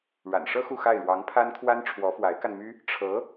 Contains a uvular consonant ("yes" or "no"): no